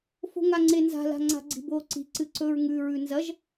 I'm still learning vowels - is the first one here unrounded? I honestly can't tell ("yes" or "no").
no